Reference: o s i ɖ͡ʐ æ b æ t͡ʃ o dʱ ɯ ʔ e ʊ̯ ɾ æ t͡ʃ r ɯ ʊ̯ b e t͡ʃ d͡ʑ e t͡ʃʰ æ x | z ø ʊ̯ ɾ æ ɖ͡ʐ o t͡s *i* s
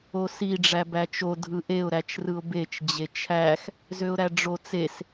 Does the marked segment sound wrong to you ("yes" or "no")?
yes